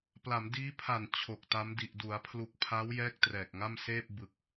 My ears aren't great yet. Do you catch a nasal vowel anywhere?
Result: no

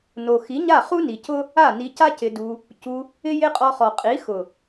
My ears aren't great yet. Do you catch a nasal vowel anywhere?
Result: no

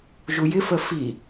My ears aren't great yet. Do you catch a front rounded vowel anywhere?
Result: no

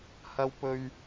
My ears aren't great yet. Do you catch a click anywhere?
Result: no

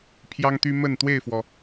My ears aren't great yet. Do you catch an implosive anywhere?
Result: no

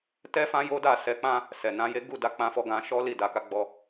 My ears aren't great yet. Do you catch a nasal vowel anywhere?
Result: yes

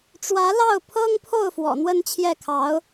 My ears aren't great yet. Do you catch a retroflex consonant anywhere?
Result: yes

